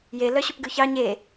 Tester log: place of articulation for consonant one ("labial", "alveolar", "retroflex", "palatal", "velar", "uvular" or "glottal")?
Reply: palatal